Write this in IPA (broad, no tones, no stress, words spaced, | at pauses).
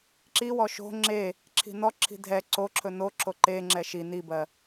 ǁiwɔ ʃo̤ ŋ͡ǁe | ǁʰi̤nɔǁʰi̤ dʱɛ ǀoǁʰɵ no ǁʰoǃeŋ͡ǁɛ ʃi nibɜ